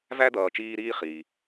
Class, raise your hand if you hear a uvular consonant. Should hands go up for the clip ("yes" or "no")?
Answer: yes